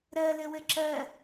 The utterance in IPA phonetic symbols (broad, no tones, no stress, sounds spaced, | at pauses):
ɾ ɜ l ɘ w ɘ ǁ ɜ